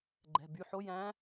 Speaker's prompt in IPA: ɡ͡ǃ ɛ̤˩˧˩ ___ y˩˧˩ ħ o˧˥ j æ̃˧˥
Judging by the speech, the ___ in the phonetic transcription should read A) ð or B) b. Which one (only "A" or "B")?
B